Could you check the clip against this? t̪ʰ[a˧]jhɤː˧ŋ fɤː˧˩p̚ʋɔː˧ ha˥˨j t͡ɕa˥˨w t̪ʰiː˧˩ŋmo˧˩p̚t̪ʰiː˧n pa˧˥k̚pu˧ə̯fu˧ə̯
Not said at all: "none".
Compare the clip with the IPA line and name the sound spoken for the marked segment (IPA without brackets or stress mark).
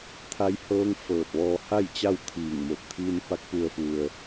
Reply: a˧